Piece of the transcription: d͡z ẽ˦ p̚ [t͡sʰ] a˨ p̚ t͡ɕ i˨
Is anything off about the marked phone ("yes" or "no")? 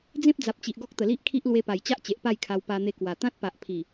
yes